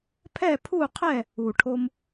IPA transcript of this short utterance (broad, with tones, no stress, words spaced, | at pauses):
pʰɛ˥˨pʰu˥˨qʰɛ˥˨ | u˧˩ʈʰo˥m